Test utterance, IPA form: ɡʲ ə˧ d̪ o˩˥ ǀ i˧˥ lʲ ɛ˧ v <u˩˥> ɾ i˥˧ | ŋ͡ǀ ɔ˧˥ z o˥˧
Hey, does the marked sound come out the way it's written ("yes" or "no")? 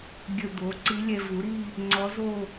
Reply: yes